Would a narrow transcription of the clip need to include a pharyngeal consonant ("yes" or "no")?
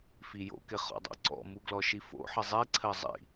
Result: yes